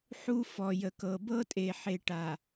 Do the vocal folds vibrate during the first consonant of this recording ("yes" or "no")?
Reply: no